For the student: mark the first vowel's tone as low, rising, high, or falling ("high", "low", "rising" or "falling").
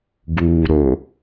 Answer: low